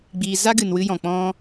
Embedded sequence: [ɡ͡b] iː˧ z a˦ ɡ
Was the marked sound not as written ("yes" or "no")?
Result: no